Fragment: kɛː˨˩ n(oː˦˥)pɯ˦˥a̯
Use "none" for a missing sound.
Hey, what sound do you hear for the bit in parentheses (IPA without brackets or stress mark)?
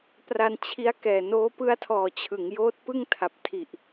oː˦˥